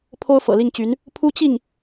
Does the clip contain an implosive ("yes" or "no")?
no